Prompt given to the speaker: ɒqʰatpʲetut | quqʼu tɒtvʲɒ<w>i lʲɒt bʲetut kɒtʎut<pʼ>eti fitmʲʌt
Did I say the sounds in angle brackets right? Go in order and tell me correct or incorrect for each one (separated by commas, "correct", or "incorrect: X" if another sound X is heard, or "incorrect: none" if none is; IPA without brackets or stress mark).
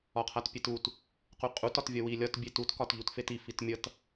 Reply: correct, incorrect: f